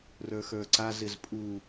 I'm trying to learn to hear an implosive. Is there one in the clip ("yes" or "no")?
no